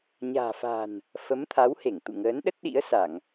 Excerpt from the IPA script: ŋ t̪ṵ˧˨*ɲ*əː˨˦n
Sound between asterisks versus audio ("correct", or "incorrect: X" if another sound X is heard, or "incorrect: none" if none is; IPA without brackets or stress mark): incorrect: ŋ